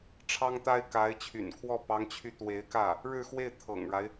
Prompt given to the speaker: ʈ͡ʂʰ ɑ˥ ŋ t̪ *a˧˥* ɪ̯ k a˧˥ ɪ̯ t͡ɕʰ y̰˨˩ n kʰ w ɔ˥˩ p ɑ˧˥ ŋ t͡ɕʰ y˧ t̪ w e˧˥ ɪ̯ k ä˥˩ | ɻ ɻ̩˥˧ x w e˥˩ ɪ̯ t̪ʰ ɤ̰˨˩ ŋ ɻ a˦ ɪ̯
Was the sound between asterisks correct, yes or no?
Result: no